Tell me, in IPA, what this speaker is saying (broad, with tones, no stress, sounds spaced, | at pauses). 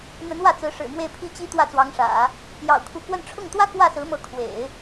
n̪ ə˧˥ n w ä˥˩ t͡s ɹ̩˧˥ ʂ ɻ̩˨˩ m w e˥˩ ɪ̯ pʰ i˥ t͡ɕ i˥ t̪ w ä˥˩ t͡s w ɑ˧˥ ŋ ʂ ä̰˨˩˦ | j ɑ̰˨˩ ʊ̯ kʰ u˧˥ k w ə˥˧ n ʈ͡ʂʰ ʊ˥˩ ŋ t̪ w ä˥ k w ä˥˩ s ɹ̩˧˥ m ɤ˧˥ kʰ w ḛ˨˩˦ ɪ̯